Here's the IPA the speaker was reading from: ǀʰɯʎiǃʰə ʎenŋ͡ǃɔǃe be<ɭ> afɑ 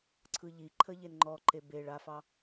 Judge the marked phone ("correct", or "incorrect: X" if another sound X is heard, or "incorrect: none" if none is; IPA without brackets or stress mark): correct